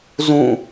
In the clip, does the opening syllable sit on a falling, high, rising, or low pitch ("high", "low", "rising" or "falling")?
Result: falling